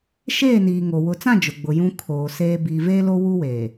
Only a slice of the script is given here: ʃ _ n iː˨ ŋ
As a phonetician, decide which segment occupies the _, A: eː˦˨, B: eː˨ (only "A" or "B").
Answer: A